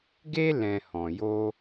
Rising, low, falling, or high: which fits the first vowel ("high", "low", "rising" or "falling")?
high